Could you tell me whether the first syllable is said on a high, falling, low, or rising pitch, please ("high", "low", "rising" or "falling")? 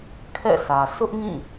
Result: falling